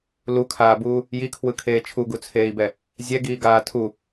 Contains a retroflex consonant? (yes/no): no